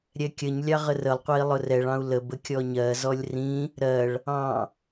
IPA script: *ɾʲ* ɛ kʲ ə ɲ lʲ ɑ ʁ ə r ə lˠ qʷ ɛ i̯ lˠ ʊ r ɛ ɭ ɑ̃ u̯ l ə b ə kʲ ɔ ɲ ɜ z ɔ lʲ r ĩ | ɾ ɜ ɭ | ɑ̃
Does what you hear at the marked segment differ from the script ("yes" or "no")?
no